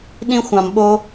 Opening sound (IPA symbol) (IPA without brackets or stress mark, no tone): ɗ